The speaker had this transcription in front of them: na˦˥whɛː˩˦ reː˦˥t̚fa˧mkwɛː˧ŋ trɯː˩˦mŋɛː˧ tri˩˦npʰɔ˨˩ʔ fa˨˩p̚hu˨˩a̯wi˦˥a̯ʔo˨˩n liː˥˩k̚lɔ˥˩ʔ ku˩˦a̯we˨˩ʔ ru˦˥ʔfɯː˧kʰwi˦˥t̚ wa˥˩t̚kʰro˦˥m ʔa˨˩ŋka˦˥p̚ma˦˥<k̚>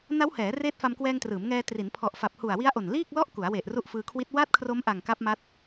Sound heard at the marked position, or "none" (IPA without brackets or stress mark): t̚